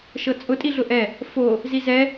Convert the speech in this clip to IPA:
ʃ ɤ t͡sʼ ʊ tʼ i ɮ ʊ ʔ ɛ | f o | z i z ɛ

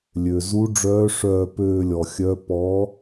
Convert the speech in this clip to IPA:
lʲ ø˩ z u˧˥ ɖ͡ʐ œː˧˥ ʂ œː˥˧ p øː˥˧ lʲ ɔ˩ xʲ œ˧˥ p ɔ˩˥

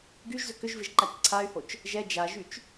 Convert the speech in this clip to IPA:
ɡ y ʒ z ʏ k ʏ ʒ v ɪ ʒ ǃ a t͡ʃ ǀʰ a y̯ h o t͡ʃ | ʒ ɛ d͡ʒ a ʒ y t͡ʃ

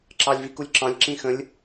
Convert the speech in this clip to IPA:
ǁ ɑ lʲ v i k u lʲ ǁ ɑ̃ lʲ ǁ ĩ x ə̃ lʲ

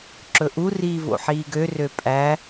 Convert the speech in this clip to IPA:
ǁ ɵ ʔ u r iː v o̰ ħ iː ɡ ø r ø pʼ æ

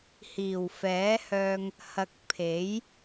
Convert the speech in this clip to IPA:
h iː˨˩ w f ɛː˨˥ h œː˧ ŋ | h ɐ˧ k̚ pʰ e˨˥ j

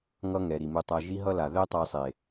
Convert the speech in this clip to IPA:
ŋ ʌ˦ ŋ ɛ˨ ɾ i˨ m u˧ tˤ a˧ ʒ i˦ ɦ ʌ˦ l a˨ ð ɛ˦ tˤ a˧ sˤ e˨

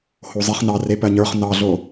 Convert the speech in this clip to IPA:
h o zˤ i χ n ɑ r e p ɜ ɲ ə˞ χ n ɑ ɮ o

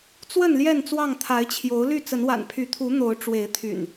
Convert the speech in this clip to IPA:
t͡s w ə˥˨ n l j ɛ˥˨ n t͡s w ɑ˥˨ ŋ t̪ʰ a˨˦ ɪ̯ t͡ɕʰ j o˨˦ ʊ̯ l y˥˨ t͡s ə˨˦ n w a̰˨˩ n pʰ y˨˦ t̪ʰ u˨˦ n̪ o˨˦ ʊ̯ ʈ͡ʂ w e˨˦ ɪ̯ t̪ʰ y̰˨˩ n

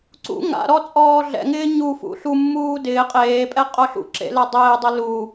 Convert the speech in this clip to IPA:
ǀ ṵ ŋ a̰ ɾ ɔ t͡sʼ ɔː ɮ ɛ̰ ŋ ɪː ɲ u f ṵ ɬ u mː uː d ɪː qʼ eː pʼ ɛ qʼ o ɬ ṵ ǁ ḛ l ɛ dˤ ɪː dˤ ɪ l u

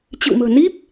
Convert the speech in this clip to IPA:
t͡ɕ ɨ̰˧˨ w m ə̤ː˨˩ n i˦˥ p̚

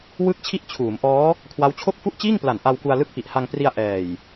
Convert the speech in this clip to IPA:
w ɯ˥˩ k̚ t͡ɕʰ i˥˩ ʔ t͡ɕʰ uː˩˦ m ʔ ɔː˦˥ | kʰ w a˦˥ w t͡ɕʰ o˥˩ k̚ f u˥˩ ʔ t͡ɕ iː˥˩ ŋ p l a˨˩ n ʔ a˧ w k u˧ a̯ l ɯ˥˩ k̚ p i˨˩ ʔ h a˧ ŋ p r i˧ a̯ ʔ ɛː˨˩ j

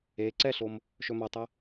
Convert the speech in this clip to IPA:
e ǀ ɛ ɬ o m | ʃ ɵ m ɐ tˤ ɛ

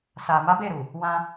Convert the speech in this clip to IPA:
s a˨ m a˨˦ b e˦˨ ɾ u˨ | w ã˧

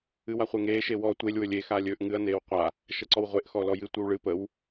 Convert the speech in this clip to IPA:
ɨ w a χʷ e ŋ eː ʃ e w ɔ tʷ e lʲ w ɵ lʲ e x aː lʲ ɵː ʔ ŋ ɨ ɐ̯ n eː w qʷ a | ʃ ə ǀ ɔ w ʁʷ e ʔ x ɔ l ɔ j ɨ tʷ ɨ w ɭ ɨ p ə w

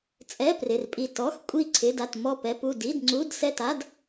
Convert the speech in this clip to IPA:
t͡sʼ ɛ˧˥˧ p r ɪ˧˥˧ r pʼ i˥˧ t ɔ˧˥˧ x kʷʼ i˥˧ ǀʰ ɪ˧˥˧ d a˥˧ t m ɔ˥˧ p ɛ˧˥˧ p u˥˧ d i˧˥˧ d ŋ͡ǀ u˧˥˧ d s ɛ˥˧ t a˧˥˧ d

